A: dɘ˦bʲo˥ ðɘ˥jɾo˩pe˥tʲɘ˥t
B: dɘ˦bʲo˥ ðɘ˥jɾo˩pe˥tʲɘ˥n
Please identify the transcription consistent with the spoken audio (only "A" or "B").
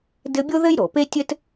A